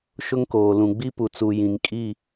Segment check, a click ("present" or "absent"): absent